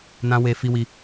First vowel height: low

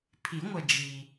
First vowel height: high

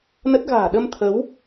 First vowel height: mid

